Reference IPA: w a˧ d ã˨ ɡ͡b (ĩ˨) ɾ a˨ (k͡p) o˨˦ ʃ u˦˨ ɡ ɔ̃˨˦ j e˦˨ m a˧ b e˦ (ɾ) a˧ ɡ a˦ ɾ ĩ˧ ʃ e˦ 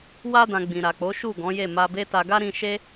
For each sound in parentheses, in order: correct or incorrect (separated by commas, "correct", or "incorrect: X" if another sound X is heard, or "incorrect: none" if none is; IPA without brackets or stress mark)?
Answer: correct, correct, incorrect: t